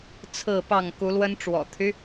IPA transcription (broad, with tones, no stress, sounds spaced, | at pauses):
t͡sʰ ɹ̩˥˨ p ɑ˥˨ ŋ k u˨˦ l w ə˦ n ʈ͡ʂ w ɔ̰˨˩ t̪ʰ y˦